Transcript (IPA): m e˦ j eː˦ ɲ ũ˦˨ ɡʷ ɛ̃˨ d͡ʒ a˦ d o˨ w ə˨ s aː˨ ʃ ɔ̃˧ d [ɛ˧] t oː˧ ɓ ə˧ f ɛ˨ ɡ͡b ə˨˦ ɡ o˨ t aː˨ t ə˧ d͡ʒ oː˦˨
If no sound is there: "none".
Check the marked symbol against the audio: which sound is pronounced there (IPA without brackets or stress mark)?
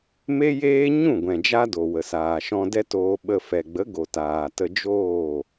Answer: ɛ˦